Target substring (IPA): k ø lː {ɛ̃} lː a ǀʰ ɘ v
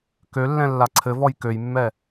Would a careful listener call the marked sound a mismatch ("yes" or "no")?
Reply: no